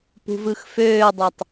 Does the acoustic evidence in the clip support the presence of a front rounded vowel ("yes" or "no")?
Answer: yes